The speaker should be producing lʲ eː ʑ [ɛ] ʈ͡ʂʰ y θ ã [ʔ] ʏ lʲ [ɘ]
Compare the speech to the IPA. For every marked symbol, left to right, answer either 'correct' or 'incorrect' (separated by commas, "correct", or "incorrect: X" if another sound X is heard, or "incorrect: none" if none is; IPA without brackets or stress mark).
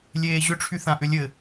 incorrect: ʏ, correct, correct